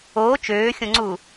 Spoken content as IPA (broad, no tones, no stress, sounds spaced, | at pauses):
oː t͡ʃ øː xʲ õ ŋ͡ǀ u